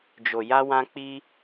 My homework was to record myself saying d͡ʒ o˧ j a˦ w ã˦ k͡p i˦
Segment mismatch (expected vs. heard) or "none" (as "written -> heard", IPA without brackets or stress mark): none